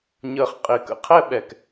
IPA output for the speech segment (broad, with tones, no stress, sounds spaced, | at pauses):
ɲ əː˨ χ qʼ ɪː˨ k ə̰˨ qʰ ɛ˦ ɓ ɛ˨ k